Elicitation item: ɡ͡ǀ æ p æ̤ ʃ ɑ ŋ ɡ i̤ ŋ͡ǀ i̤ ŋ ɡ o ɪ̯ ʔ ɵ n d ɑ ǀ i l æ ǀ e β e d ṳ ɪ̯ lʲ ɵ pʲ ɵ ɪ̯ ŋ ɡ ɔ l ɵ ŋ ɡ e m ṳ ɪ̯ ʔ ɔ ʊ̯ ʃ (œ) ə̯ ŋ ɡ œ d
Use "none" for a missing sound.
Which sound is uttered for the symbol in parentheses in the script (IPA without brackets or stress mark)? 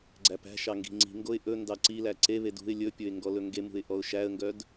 æ